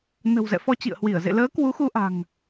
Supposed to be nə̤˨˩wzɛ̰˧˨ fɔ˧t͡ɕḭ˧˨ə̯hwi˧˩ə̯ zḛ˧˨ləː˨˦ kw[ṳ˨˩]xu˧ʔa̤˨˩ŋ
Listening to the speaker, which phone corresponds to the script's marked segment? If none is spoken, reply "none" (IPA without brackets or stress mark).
u˨˦